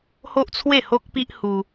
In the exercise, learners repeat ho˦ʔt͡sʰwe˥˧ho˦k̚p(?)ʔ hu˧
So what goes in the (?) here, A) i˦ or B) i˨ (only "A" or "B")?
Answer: A